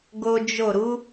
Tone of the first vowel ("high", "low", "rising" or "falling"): high